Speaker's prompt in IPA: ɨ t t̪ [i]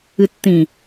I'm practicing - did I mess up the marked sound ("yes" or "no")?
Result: yes